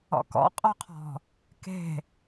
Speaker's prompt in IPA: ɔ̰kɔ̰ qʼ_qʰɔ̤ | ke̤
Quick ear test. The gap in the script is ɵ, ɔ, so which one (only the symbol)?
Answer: ɔ